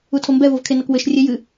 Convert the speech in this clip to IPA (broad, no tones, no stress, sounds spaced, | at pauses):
u tʰ o m b ɛ v o v kʰ e n ɐ k w ɘ ʃ rʲ e j ɨ